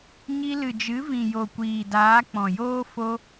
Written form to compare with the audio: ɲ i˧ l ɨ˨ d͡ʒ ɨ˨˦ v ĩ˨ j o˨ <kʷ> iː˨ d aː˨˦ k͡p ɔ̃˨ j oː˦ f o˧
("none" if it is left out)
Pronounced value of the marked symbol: kʷ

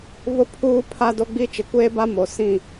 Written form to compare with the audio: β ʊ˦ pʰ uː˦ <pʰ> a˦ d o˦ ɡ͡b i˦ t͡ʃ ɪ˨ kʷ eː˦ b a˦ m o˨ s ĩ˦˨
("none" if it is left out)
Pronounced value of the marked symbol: pʰ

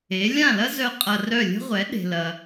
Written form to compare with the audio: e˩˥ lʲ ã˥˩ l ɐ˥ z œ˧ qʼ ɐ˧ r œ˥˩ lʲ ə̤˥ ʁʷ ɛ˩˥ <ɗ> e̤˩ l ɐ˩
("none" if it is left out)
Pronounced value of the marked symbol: ɗ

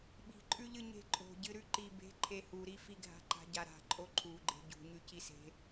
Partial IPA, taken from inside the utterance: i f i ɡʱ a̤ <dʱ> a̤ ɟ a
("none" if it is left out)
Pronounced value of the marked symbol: ǃ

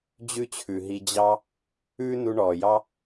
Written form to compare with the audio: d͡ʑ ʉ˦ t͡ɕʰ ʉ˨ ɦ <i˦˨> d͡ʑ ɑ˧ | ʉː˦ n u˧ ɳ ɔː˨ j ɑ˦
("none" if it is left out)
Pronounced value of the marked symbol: i˧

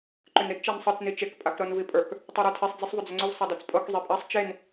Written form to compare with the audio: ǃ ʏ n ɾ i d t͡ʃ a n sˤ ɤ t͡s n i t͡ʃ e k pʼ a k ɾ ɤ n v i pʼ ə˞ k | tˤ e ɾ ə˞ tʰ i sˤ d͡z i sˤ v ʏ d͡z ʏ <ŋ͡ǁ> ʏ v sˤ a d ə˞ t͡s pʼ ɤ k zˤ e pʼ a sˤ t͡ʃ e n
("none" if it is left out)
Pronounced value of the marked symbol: ŋ͡ǀ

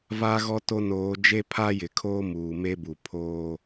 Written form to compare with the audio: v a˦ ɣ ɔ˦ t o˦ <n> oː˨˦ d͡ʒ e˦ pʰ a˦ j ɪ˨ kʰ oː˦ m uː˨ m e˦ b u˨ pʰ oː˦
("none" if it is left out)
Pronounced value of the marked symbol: n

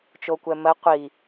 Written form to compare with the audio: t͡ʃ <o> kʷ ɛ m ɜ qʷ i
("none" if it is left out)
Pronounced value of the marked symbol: o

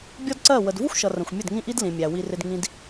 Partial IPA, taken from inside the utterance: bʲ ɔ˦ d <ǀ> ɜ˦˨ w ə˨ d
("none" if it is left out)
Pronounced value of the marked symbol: ǀ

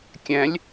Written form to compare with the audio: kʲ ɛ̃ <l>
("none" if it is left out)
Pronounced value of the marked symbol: lʲ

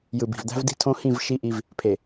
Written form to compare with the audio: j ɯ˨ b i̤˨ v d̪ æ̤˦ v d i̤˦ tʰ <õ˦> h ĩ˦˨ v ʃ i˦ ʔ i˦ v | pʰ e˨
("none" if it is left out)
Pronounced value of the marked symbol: õ˦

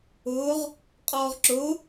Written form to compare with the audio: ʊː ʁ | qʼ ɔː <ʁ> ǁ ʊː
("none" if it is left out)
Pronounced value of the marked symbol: ʁ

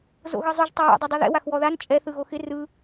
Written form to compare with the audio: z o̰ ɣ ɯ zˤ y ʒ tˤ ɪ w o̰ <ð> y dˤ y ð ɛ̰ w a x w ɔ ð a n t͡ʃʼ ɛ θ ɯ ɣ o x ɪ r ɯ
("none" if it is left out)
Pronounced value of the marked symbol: dˤ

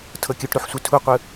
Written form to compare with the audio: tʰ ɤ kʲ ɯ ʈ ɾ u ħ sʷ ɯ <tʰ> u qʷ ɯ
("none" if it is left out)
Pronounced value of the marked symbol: tʰ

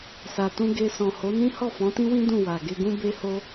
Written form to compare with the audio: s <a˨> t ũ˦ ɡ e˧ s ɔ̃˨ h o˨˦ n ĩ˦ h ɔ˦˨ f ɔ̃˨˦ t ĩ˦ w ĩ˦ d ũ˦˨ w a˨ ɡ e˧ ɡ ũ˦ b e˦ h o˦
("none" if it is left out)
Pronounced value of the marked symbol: a˧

